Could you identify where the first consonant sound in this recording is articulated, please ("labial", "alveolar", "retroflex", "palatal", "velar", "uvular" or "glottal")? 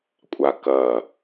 velar